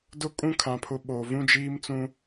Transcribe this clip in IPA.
dʊ˦kʼũ˦kʰã˨ pʰʊ˦ɓo˨ vũ˦d͡ʒiː˦mt͡sũ˦

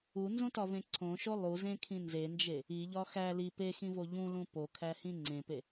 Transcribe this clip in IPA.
unzõtɒvẽ ǀʰõʃo lˠuzẽkʰĩ nzend͡ʒe | iʎɒ xæ li pexĩvo ʎũlũ pokʰæhĩ ŋ͡ǀẽpe

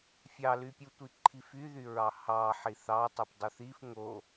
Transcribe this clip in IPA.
fʲɑlypʲutʷi ǃʰifyðyɹɑ hɑħi θɑtˤup dˤuθif ŋo

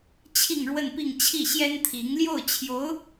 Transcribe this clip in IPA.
t͡ɕʰi˥˧ŋɻwə˥˧npi˥˧ŋ t͡ɕʰi˥˩ɕjɛ˥nt̪ʰi˧˥ŋ ljo˥˩ʊ̯t͡ɕʰjo˧˥ʊ̯

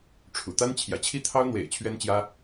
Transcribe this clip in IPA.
ʈ͡ʂʰṵ˨˩t̪a˥n t͡ɕʰjä̰˨˩t͡ɕʰi˥t̪ʰɑ˥ʊ̯ n̪wḛ˨˩ɪ̯ t͡ɕʰɥɛ˥nt͡ɕjä˥

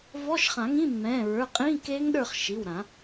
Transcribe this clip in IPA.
vɔ˧˥˧ʃχã˨˩˦ŋĩ˧˥˧ mːɛ̃ː˩˧˩ɹə˞˩˧˩ qʼĩː˧˥˧keː˦˥ŋɗə˞˦˨χ ʃi˩˧˩wɾã˨˩˦

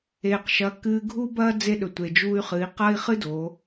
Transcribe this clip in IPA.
eː˩qʃɐ˩˧ kɨː˧ɡʱu˥bɐː˥ d͡ze˧˥ɗɵ˩ tʷe˩d͡ʒuː˧y̯χɨ˩˧i̯ qɐː˥i̯ χɨ˥doː˩˧

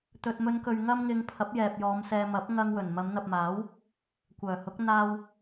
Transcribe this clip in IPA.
t̪ɵ˨t̚mɵ˨˧nkɵ˨ɥ ŋɐ˧mŋɪ˨ŋ pʰɐ˨˥p̚jɛː˨p̚jɔː˨˧m sɛː˨ mɐ˨˥p̚ ŋɐ˧ŋwɵ˨˩n mɐ˨˧mn̪ɐ˨p̚maː˨˥w | kʷœː˨˩hʊ˨˥k̚ n̪aː˧w

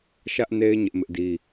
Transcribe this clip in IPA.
ʃä˦ʔne˦ɪ̯ ɲɪ˦ʔmɪ˦ʔdi˦

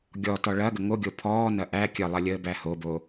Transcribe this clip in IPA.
ɡʲɔtɔ ɭɐɡə ŋoɡʲo pʰɔːnɐ ʔæ kʲəlˠɐlʲəːbæ hobo

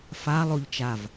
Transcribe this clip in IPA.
fa lˠoʎt͡ʃav

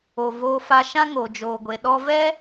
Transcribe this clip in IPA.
o˨voː˧fa˧ ʃã˦ŋo˨d͡ʒoː˨ɡʷe˨ ɗɔ˧vɛ˦

